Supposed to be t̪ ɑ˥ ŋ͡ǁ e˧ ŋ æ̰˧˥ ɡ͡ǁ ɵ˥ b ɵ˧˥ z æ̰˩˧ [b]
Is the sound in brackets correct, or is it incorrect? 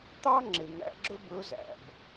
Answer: correct